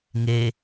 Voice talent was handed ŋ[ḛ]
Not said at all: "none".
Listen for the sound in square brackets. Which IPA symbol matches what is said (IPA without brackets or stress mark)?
e